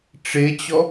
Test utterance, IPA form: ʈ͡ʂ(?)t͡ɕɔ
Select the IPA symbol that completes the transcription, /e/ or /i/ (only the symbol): e